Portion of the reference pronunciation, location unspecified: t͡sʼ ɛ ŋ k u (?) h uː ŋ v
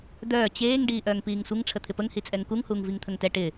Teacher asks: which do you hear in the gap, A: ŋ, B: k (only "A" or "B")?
A